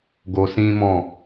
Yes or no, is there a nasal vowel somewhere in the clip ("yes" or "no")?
yes